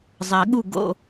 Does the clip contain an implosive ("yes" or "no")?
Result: yes